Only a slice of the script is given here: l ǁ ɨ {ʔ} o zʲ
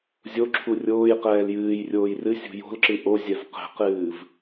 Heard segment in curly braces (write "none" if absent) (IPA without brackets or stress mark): ʔ